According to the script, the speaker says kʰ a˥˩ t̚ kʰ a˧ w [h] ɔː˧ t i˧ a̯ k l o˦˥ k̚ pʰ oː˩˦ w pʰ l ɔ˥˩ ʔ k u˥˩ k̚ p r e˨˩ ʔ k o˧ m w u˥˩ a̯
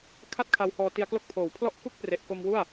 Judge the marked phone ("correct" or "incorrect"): correct